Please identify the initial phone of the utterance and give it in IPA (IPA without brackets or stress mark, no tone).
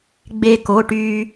ɡ͡b